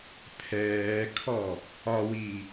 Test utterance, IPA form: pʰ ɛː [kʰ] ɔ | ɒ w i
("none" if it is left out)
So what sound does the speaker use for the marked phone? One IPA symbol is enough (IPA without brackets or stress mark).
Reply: kʰ